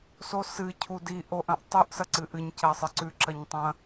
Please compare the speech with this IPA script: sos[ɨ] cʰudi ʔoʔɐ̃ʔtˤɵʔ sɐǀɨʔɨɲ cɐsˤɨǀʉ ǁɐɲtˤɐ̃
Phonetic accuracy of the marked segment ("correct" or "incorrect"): correct